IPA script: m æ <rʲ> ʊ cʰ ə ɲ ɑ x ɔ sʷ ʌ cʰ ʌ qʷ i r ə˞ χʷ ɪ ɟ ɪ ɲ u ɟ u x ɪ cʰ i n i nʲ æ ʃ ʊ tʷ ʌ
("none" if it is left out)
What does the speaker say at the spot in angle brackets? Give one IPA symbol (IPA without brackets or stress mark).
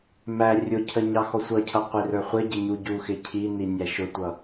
rʲ